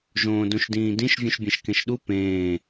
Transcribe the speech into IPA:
ʒõːdũʃdĩːdĩʃ vʲũʃbʲẽʃkẽʃɗu pẽː

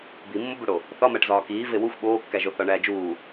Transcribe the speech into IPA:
bimːobuɽo | θɒmæʈ zɒːkiː vewuxʷ ɓoːkːæʒo θɒɳæːd͡ʒuː

